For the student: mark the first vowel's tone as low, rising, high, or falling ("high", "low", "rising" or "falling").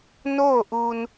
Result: falling